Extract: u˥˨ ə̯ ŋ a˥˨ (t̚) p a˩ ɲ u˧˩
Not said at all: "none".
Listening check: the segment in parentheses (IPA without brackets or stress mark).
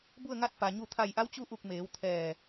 t̚